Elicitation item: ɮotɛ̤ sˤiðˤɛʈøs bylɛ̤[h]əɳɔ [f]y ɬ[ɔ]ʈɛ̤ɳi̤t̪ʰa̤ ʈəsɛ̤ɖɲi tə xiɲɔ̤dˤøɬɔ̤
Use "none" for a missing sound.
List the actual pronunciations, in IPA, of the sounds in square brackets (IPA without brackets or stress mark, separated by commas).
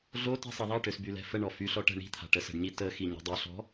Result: f, f, ɔ